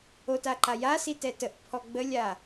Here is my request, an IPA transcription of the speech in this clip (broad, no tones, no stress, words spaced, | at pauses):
otaǃa jasi tɛtəʔpʰɔ ɡ͡bəlʲa